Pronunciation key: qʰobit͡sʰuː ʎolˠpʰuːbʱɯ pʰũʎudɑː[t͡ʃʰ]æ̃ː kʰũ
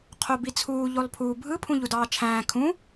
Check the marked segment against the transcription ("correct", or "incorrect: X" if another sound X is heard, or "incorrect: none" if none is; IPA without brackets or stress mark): correct